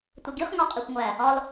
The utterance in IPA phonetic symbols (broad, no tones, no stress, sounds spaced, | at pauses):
tʷ e ɡ i χ ŋ ɒ qʼ i xʷ ŋʷ æ | ɒ l